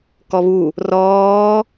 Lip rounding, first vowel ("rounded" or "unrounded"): rounded